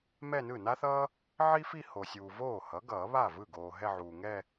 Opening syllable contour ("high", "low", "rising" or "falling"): falling